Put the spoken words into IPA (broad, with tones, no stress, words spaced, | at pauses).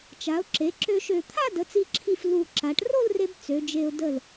t͡ʃa˩˧ʊ̯ǁe˩˧ ǁø˧ʃø˧˩ t̪ʰa˥˧də˩˧t͡si˧˩ǁʰi˧˩f lu˧˩ ǁa˩˧ʈ ro˥˧lre˧b t͡sø˩˧d͡ʒe˧ʊ̯ də˧˩l